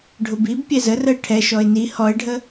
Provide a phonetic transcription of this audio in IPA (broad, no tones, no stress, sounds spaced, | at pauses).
ɖʱ ʊ b i b pʲ ɛ z ə r ə ɪ̯ ʈʰ ɛ ʃ ɔ ɪ̯ n i h ɔ ɪ̯ ɖʱ ə